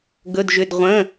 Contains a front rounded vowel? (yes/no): yes